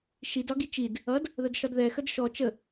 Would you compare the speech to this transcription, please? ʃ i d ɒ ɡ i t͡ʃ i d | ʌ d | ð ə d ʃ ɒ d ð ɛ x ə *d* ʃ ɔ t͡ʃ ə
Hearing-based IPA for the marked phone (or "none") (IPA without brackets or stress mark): d